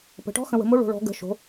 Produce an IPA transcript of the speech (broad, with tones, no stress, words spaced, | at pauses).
pə̤˩˧ʈɔ̤˧˥xə̃˩˧ wə̤˩˧mo˧˥ɭo̤˩˧ ɭɔ̤˩˧ɡə̤˩˧ʃo̤˩˧